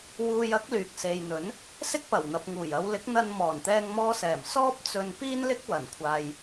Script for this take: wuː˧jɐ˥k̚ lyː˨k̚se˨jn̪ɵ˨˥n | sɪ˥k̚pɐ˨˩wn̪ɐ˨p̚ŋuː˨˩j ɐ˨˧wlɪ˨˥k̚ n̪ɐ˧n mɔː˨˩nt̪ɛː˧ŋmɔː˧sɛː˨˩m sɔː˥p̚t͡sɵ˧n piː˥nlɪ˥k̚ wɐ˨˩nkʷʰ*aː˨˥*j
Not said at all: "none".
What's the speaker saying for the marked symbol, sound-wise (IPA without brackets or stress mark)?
aː˨